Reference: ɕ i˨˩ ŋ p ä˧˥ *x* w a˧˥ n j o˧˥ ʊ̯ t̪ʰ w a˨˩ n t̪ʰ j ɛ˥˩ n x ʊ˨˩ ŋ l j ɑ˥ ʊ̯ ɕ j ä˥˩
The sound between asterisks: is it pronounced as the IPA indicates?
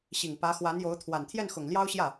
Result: yes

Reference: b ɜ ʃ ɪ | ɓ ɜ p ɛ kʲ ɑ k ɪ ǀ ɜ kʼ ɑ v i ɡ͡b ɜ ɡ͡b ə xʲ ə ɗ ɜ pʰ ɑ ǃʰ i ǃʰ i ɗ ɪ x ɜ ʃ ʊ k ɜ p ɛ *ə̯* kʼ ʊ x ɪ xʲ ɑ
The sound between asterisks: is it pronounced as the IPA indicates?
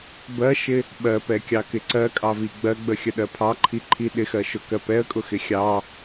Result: yes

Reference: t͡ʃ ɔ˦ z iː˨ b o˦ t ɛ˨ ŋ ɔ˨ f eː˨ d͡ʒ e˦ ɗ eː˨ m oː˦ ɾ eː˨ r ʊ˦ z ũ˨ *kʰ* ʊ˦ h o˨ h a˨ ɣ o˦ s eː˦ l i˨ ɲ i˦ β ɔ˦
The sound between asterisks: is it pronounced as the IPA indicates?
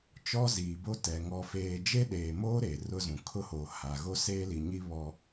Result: yes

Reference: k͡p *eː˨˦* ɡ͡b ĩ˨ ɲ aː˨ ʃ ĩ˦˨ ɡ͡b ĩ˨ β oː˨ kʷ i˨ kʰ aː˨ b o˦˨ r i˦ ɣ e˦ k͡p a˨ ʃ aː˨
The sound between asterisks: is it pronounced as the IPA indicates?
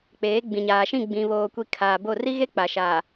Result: yes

